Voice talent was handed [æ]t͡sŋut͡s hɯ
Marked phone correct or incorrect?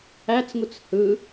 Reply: correct